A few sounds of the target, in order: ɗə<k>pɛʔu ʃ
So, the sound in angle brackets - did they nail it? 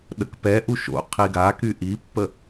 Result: yes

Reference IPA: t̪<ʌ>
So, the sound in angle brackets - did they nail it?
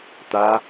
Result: no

